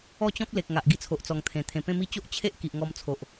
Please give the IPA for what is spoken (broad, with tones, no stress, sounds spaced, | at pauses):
ɔ˥˧ t͡ɕ ɔ̃˦ p̚ l e˨ k̚ ŋ a˨ ʔ ɡ i˧ t͡sʰ o˨ ʔ t͡s ɔ˨˩ ŋ t̪ʰ ẽ˨˩ t̪ʰ ẽ˨˩ p ẽ˧ m i˧ t͡ɕ o˦ ʔ t͡ɕʰ e˦ ʔ k i˨ ʔ ŋ ɔ˧ m t͡sʰ o˨ ʔ